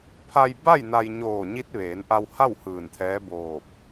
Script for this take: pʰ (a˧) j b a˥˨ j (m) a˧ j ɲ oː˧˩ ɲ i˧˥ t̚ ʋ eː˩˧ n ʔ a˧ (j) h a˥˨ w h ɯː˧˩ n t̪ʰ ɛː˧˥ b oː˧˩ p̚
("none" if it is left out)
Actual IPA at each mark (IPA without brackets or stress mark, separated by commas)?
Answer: a˧, n, w